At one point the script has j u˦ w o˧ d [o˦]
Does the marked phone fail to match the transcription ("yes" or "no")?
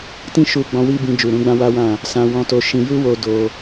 yes